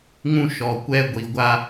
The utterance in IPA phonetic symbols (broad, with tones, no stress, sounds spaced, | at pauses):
ŋ ũ˦ ʃ ɔ˨ kʷ ɛ˦ ɡʷ i˨ ɡʷ a˦